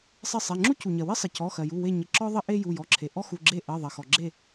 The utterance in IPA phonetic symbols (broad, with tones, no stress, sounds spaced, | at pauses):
sˤ ɪ˦˨ sˤ e˩˧˩ ŋ͡ǁ u˥ c u˩ ɲ ɜ˩ w ɪ˥ sˤ ɪ˩ c ɔ˩˧˩ x ɜ˩ j u˩˧˩ w e˦˨ ɲ ɪ˩˧˩ ǁ ɔ˥ ðˤ ɪ˥ ʔ e˥ j u˩˧˩ j ɔ˩˧˩ ǁʰ e˩ ʔ ɔ˥ x u˩˧˩ ɡ͡ǁ e˦˨ ʔ ɜ˩˧˩ ðˤ ɜ˩ x ɔ˩ ɡ͡ǁ e˦˨